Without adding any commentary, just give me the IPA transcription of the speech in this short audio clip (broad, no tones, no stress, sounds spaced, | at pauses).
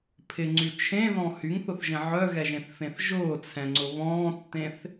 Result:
pʰ ɪ ŋ͡ǀ y t͡ʃʰ ẽ ð ɔ̃ h y ŋ θ ʊ θ ʒ ẽ ʕ œ ɣ ɛ ʒ ẽ θ f ẽ θ ʒ ʊː t͡sʰ ɛ̃ ŋ͡ǀ ʊ β ɔ̃ː tː ẽ θ